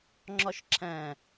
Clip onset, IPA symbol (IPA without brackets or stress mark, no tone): ŋ͡ǁ